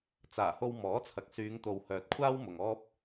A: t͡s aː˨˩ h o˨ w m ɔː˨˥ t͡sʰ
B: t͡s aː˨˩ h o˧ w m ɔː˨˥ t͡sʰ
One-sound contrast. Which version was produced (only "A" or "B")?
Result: B